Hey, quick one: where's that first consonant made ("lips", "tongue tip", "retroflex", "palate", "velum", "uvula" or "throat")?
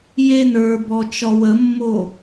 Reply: palate